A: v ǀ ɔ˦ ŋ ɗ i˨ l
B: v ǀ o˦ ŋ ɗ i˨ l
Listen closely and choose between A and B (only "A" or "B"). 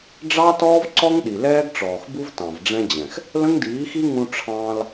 A